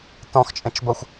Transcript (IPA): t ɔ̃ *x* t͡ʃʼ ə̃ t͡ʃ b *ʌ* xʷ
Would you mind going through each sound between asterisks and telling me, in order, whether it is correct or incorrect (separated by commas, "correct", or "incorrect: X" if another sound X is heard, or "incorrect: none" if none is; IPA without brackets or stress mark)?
correct, correct